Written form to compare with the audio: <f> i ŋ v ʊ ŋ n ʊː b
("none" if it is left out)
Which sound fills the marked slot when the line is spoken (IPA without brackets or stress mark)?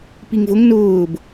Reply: p